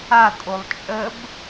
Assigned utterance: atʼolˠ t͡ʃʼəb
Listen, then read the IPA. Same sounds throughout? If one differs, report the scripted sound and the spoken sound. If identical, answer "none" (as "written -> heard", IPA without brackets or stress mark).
none